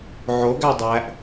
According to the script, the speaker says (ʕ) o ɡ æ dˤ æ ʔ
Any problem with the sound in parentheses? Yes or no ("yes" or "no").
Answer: no